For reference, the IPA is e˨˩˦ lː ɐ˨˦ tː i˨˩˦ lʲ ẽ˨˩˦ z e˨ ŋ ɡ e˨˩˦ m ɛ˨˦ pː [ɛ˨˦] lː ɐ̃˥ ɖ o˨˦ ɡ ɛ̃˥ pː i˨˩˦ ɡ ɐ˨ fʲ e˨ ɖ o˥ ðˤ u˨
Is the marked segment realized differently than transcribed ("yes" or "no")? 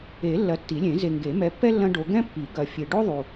yes